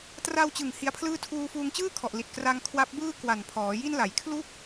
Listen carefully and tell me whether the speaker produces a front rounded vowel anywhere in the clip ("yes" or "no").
no